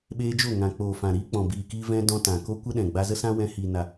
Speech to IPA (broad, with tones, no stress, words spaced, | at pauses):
ɓeː˧d͡ʒo˦˨ŋã˨ k͡poː˨fã˨ɾiː˧ k͡pɔ̃˨biː˨kiː˧ vɛ̃˧ dɔ̃˧tã˨ko˦ kʷə˦ɗɛ̃˨ɡ͡ba˧ zə˦sã˦ wɛ̃˧ hi˨ na˨